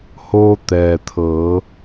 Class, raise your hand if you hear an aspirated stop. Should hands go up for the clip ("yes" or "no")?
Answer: yes